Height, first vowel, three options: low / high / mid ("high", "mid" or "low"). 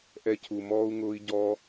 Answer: mid